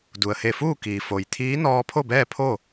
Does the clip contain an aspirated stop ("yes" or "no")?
yes